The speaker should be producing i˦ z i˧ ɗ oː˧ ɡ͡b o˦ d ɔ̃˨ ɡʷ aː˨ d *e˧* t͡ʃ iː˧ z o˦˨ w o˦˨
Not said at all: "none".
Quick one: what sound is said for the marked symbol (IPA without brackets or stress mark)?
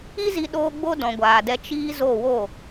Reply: ɛ˧